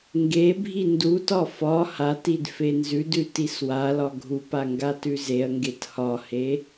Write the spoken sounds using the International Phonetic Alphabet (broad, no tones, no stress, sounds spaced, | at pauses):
ŋ ɡ e bʱ i n d u t ɒ f ɒ h a t i d f e n z ʉ d ʉ t i s w a l ɒ ɡʱ u p a ŋ ɡ a t ʉ z e ɐ̯ ŋ ɡ e t h ɒ h e